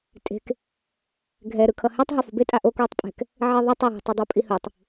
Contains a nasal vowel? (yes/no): no